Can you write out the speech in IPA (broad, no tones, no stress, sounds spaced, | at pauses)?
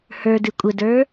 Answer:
h ə˞ d ɨ kʷʼ ə d ə˞